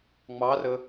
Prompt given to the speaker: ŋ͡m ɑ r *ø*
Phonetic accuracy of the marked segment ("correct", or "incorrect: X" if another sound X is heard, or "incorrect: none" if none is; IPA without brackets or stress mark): incorrect: ə